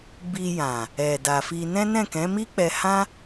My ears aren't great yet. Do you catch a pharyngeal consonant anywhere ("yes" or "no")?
no